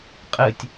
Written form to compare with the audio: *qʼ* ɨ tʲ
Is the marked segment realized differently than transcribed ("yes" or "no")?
no